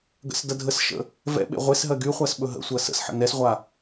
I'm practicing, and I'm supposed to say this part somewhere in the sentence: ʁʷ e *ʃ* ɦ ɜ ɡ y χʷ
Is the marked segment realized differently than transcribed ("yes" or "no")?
yes